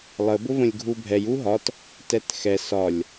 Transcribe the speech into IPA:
lˠəbʊvə̃lʲ ɡʱubʱɛj uɦɒt | tɛtxɛ sɒlʲ

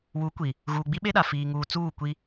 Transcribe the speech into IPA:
wu˨˦kʷi˨ | ɣuː˨ɡ͡bi˦ɓe˦ɗa˨ fiː˨ŋuː˨ t͡suː˦˨kʷi˦

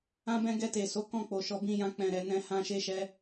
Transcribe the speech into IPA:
ã˦bɛ̃˦ ɡɛ˧te˨so˨˦ kɔ̃˦˨k͡po˨ʃɔ˧ bĩ˧ jã˦k͡pɛ̃˧ɾɛ˧ nɛ̃˦hã˦ ʃe˦ʃɛ˦

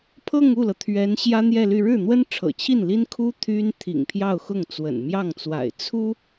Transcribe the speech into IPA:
pʰɤ˥˧ŋu˥˩lɤ˩ t̪ʰɥɛ˧˥n ɕjä˥n̪jɛ˥˧ly˥˧ ɻɻ̩˥˩n̪wə˥nʈ͡ʂʰɤ̰˨˩t͡ɕʰi˥˩n li˥nkʰu˥ t̪ʰy˥n t̪ʰḭ˨˩ŋpʰjɑ˥˧ʊ̯xʊ˥˩ŋ t͡swə̰˨˩nmjɑ˥˩ŋt͡swa̰˨˩ɪ̯ t͡sʰu˥

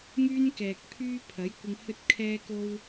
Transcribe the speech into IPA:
ŋyː˥nkɛː˨k̚pʰyː˥ pʰɐ˨˥j kʷɪ˧ŋhɵ˥t̚kʰɛː˥ ko˥w

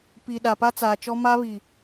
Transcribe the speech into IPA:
pi˨ ɗa˨pa˦t͡saː˨t͡ʃɔ˦ ma˦βi˨

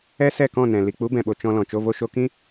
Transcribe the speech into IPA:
ɛ˦sɛ˦˨kɔ̃˦˨nɛ̃˨ li˨k͡pu˨˦bɛ̃˨ɓo˨ t͡ʃɔ̃˧lɔ̃˨ t͡ʃo˧vo˧ʃo˧kĩ˦

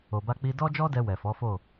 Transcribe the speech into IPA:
o˨ba˧ k͡pi˧dɔ˦d͡ʒɔ˦dɛ˧ wɛ˨fɔ˨˦fo˦˨

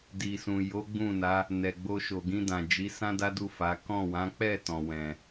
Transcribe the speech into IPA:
di˨sũ˨jo˨˦ ɡ͡bũ˦˨na˨˦ | nɛ˨ɡ͡bo˧ ʃo˨ɡĩ˧dã˨ d͡ʒi˨˦ sã˦da˦du˦˨ fa˨˦ kɔ̃˦˨wã˨˦ k͡pɛ˦˨ tɔ̃˨wɛ̃˨

